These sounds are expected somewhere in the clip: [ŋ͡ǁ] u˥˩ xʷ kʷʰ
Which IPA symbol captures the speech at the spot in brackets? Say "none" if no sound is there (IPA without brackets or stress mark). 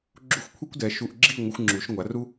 ɡ͡ǁ